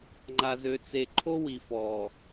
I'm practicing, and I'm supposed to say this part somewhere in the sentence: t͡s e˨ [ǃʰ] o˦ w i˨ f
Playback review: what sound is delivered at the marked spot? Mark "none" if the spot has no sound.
ǃʰ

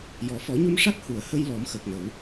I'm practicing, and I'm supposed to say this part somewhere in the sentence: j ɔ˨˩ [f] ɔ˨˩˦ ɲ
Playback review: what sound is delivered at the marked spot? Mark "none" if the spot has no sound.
f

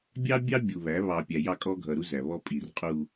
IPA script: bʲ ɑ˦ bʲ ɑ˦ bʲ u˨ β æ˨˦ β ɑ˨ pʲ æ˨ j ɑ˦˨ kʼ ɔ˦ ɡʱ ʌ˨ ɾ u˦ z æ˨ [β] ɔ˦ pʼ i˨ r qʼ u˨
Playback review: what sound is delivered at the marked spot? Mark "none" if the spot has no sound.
β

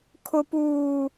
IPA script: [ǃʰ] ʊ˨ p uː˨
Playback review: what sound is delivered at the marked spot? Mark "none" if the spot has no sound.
kʰ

